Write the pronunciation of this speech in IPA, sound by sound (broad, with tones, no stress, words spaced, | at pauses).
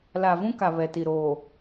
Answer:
la˨vũ˦ka˨ βɛ˨ti˨ ɾoː˨